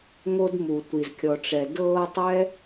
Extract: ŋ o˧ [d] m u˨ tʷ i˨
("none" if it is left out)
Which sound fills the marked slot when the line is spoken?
d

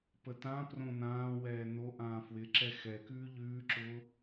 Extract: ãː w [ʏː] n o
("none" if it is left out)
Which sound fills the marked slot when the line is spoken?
ɛː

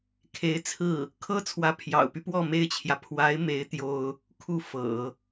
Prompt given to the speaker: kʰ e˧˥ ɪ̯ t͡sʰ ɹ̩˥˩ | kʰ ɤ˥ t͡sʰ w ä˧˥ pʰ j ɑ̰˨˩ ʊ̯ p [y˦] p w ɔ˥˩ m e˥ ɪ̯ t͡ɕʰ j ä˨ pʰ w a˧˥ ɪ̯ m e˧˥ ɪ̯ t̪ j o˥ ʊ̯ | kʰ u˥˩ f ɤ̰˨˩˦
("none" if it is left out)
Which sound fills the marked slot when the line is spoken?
y˦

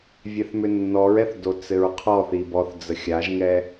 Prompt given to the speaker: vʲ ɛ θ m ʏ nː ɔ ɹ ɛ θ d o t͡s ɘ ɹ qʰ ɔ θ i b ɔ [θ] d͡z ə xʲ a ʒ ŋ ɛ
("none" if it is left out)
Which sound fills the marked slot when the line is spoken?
θ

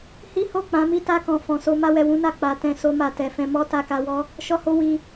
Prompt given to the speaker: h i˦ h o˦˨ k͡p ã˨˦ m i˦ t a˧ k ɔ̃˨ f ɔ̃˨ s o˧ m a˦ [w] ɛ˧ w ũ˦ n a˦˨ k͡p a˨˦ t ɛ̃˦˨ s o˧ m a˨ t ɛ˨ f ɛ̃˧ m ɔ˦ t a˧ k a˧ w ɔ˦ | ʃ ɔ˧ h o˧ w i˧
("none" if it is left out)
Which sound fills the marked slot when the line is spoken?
w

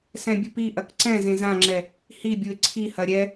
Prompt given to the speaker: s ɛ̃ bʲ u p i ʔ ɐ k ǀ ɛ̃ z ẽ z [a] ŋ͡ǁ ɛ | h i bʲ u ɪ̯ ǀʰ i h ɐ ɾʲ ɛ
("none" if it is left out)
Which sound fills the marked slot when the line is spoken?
ã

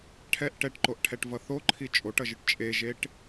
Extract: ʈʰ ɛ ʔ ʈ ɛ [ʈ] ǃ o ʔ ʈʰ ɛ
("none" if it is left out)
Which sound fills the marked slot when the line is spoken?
ʈ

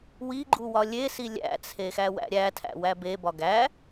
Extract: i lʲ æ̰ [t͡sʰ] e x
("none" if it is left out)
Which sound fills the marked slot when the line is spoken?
t͡sʰ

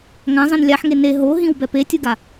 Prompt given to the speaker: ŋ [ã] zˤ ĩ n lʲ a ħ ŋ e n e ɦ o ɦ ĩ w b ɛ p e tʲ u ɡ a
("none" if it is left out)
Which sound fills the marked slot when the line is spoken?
ã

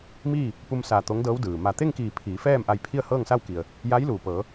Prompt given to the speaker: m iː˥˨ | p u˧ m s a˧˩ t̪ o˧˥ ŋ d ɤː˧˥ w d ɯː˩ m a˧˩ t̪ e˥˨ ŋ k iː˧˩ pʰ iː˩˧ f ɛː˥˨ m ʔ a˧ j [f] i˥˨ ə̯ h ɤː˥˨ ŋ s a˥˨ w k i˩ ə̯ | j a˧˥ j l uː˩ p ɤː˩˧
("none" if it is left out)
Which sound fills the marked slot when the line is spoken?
pʰ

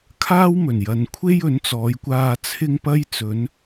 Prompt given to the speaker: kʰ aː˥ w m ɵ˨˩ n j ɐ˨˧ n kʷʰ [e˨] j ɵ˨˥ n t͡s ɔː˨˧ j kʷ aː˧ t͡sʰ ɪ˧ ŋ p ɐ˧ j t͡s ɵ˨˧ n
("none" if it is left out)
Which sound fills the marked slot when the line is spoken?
e˥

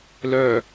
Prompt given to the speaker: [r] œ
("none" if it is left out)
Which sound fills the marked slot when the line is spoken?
l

